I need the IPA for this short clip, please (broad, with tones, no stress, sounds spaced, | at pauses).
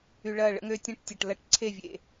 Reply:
y˨ ɭ ɐ˦˨ ɭ ə̰˦ ŋ ø˦ tʲ ɐ̃˦ ʈ tʲ ɐ˨ ʈ l ɐ˦˨ ʈ ǀʰ e˦˨ vʲ ḛ˨